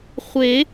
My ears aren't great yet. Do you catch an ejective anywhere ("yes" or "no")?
no